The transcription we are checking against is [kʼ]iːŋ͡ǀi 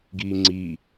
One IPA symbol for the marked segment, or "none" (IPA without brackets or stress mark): ɡ